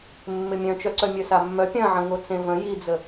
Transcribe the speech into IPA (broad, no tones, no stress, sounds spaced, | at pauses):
mː ɪ mʲ œ̃ t͡ʃ œ ǀ œ mʲ œ s a mː œ pʲ ɐ̃ ʕ ə̃ ŋ o t͡s ẽ v ə̃ j i d͡z ə